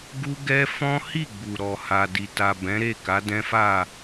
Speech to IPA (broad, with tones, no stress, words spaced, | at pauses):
ɡu˦ɡɛ˦ fɔ̃˦hi˦˨ ɡ͡bu˨ɾɔ˨ ha˨di˨ ta˨bɛ̃˨˦ɾe˦˨ka˨˦ dɛ̃˦fa˦˨